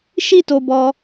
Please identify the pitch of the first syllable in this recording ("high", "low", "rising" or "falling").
high